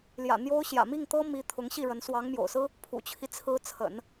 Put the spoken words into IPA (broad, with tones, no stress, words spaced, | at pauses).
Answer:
ljä̰˨˩ n̪jo˥ʊ̯ ɕjä̰˨˩mi˥˩ŋt̪ɤ˥ mi˧˥ t̪ʰʊ˧˥ŋɕi˥˩ɻə˧˥n swɑ˧˥ŋ mjo̰˨˩ʊ̯sɹ̩˥ | pʰṵ˨˩t͡ɕʰi˦t͡sʰɹ̩˧˥ t͡sʰə̰˨˩˦n